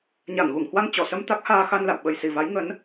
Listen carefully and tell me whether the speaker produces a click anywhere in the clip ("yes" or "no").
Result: no